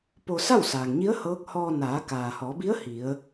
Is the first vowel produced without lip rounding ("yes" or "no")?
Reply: no